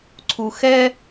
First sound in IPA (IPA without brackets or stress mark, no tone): ǀʰ